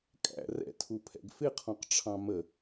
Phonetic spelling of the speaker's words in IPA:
kʼ æ̰ r ɛ̰ tʰ u pʰ ɛ̰ ɡ f ɪ qʰ ɔ̃ q ʈ͡ʂʰ ɑ̃ m ə

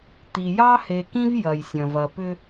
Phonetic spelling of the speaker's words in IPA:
t̪ i˨ j ɑ˦ h e˨ k ĩ˦ v j ɐ˨ j sʲ ɐ̃˨ v ɐ˨ p ʏ˦

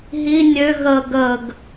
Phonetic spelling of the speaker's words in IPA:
ɦ i nʲ ø ɣ ə ɡ ə ɡ

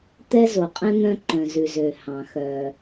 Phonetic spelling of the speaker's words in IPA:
t̪ ɛ˧ z o˩ qʼ ɛ̃˧ n̪ œ̃˧ ǃ œ̃˩ z ʉ˩ z ø˩ h ɑ̃˩ x œ˩

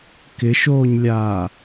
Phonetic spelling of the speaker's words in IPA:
k ɪ ʃ oː ɲ lʲ aː

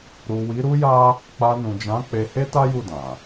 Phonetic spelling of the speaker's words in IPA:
ɾ u˨ w i˨˦ ɾ u˦ j a˦ | k͡p a˧ n ũ˨ d͡ʒ ã˨˦ k͡p e˧ h e˦ t a˦ j u˦˨ d ã˨

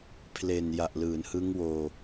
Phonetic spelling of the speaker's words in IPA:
pʰ l e˨˩ n j a˨˩ ʔ l ɯː˩˦ n h ɯ˦˥ ŋ w oː˧

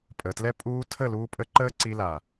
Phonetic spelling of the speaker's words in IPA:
pʼ ə˨ t l ɛ˦ pʼ uː˧ tʰ ə˦˨ l uː˧ pʼ ə˧ ǃ əː˦ ǀ i˧ l a˨

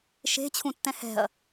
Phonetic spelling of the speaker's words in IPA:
ʃ e̤ t͡ɕʰ ũ tː ɛ̃ h ɛ̤ ɐ̯

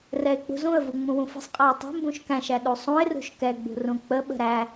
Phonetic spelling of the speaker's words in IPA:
r ɛ ɪ̯ k͡p ṳ z ũ ə̯ v u ŋ͡m ũ w ũ f ə̤ sˤ qʼ æ ɪ̯ tˤ ṳ m b ũ ʃ k æ̃ ʃ æ ɗ u sˤ ũ ɪ̯ r ṳ ʃ k ɛ ɡ͡b ṳ r ũ k͡p ə ɓ ə̤ ɾ æ

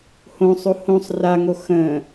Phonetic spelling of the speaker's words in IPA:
h õ sˤ o h õ sˤ r a ŋ o x ə̃

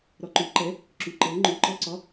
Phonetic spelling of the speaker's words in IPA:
ɾ ɒ ǃ y ǃ ɛ | ǁ y ǃ ɤ ŋ͡ǃ y ǃ ɒ ǀ ɒ

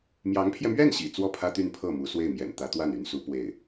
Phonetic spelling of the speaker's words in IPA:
m j ɑ˧˥ ŋ pʰ j ɛ˧ m ɥ ɛ˥˩ n ɕ ḭ˨˩ t͡s w ɔ˥˩ pʰ ä˥ t̪ y˥˧ n pʰ ɤ˥˩ m u˧˥ s w e˥˩ ɪ̯ m j ɛ̰˨˩ n t̪ ä˧˥ t̪ w a˥˩ n y˧˥ n s u˧˥ p w e˥˩ ɪ̯

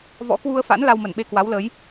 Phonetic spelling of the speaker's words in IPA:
v ɔ̰˧˥ k w u˧ ə̯ f a̰˧˥ n l a˧ w m ə˧˩ n ɓ e˧ k w a˨˦ w l əː˨˦ j

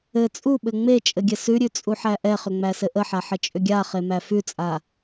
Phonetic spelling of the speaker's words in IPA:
ɘ t͡sʼ u ɓ ɘ ŋ͡m e t͡ʃʼ ɘ ɡʲ ɘ s ʉ ɾʲ ʉ t͡sʼ u ħ æ ʔ ɛ χ ʏ ŋ͡m æ s ɘ ʔ ə ħ a ħ ə t͡ʃʼ ʏ ɡʲ a χ e m æ f ʉ t͡sʼ a

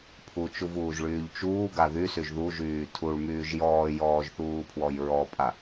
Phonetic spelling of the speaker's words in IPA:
pʰ u t͡ʃ u v uː ʒ ɭ yː ʎ t͡ʃ uː ɡ a ð y s y ʒ ð u ʒ yː tʰ u ɭ m yː ʒ j ɔː j ɔː ʒ θ uː pʰ w ɔ j ɹ ɔ pʼ a

